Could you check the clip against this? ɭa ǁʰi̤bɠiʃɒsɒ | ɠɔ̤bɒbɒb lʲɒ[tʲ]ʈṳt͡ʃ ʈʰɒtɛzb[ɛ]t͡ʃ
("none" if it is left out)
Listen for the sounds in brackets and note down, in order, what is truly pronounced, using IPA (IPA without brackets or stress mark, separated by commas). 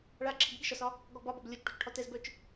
t͡ʃ, œ